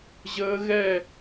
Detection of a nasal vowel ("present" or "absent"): absent